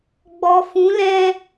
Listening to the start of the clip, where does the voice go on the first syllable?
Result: low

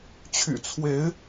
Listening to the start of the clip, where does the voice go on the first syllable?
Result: low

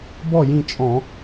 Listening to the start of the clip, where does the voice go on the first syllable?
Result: falling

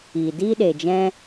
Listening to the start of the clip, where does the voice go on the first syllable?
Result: low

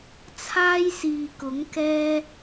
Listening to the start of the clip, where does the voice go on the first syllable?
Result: high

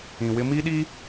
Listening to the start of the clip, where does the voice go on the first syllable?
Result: low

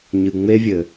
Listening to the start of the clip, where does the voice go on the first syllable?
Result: low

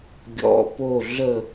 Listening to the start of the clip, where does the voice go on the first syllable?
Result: low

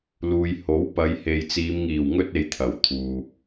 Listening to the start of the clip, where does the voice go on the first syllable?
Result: low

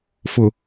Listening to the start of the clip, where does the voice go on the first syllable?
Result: low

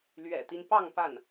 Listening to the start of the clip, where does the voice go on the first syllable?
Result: low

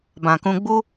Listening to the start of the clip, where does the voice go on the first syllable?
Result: low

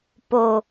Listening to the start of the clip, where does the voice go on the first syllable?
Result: low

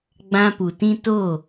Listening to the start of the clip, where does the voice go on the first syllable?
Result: high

